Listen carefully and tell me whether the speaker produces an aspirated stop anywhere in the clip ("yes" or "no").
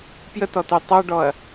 no